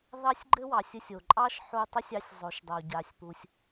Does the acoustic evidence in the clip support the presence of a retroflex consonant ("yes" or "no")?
no